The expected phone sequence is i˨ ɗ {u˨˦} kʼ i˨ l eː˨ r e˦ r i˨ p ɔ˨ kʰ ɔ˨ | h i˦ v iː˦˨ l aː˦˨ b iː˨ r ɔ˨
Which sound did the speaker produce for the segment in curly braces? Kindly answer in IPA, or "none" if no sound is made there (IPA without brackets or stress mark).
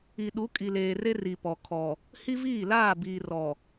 u˨˦